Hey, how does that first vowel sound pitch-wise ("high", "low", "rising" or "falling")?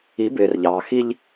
rising